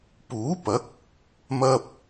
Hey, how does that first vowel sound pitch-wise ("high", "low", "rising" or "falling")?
rising